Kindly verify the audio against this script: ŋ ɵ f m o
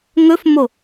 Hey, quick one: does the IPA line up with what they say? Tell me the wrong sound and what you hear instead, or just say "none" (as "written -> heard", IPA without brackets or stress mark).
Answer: none